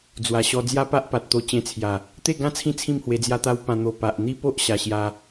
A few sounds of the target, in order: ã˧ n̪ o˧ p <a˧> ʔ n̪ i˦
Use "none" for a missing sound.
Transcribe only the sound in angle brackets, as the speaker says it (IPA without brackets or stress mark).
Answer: a˨